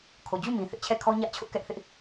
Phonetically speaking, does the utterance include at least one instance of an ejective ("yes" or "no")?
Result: no